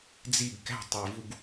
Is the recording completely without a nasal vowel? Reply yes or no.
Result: yes